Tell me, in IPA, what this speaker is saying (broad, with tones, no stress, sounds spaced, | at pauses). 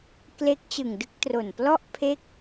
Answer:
k l e˦˥ k̚ t͡ɕ ɯ˨˩ ŋ d ɯ˥˩ k̚ t r o˨˩ n p l ɔ˥˩ ʔ pʰ e˥˩ k̚